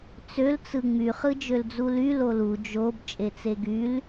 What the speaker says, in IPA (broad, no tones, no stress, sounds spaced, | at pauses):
t͡s ø l t͡s ɯ ŋ͡m y χ ɯ d͡ʒ ø l d͡z u l y l o l u d͡ʒ o b t͡ʃʼ e t͡s e ɡ y l